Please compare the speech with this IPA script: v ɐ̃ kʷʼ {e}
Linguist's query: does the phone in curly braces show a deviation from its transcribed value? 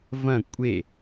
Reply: no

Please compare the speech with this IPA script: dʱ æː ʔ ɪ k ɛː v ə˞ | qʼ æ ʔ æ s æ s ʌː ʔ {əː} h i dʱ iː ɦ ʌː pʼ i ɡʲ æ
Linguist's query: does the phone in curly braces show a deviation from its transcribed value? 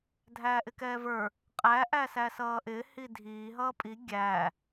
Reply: yes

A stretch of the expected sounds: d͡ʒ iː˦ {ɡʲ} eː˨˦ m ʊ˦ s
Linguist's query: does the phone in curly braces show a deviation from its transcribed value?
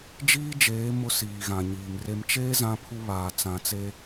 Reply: yes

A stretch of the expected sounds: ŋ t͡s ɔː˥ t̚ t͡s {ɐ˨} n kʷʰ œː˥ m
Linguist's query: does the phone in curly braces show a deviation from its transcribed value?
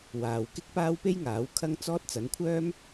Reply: yes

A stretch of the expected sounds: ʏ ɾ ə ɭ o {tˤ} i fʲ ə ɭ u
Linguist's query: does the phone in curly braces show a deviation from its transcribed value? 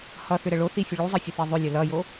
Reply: yes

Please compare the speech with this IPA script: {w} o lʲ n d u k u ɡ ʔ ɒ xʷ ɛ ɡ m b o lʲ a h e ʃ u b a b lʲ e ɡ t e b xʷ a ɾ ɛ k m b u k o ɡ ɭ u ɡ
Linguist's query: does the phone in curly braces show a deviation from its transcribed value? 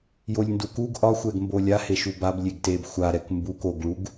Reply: yes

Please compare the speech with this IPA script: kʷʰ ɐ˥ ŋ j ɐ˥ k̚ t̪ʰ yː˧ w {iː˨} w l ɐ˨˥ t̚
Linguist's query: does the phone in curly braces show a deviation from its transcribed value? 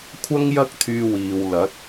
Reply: no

